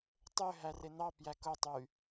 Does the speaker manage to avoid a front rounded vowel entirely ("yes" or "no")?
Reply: no